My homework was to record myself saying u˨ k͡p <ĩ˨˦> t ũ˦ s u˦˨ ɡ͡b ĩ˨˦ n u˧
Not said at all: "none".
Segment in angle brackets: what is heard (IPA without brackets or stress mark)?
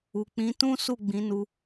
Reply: ĩ˨˦